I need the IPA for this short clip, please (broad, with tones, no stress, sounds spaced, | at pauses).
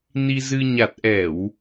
n i˧ z ɨ˧ ɲ a˨˩ t̚ ʔ ɛ˧˩˨ w